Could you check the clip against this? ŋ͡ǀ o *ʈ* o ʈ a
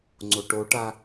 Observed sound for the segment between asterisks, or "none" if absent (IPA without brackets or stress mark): ʈ